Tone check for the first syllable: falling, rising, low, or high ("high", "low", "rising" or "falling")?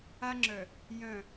high